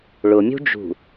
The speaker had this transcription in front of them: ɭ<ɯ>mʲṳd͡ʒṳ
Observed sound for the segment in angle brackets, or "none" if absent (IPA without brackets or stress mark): ʊ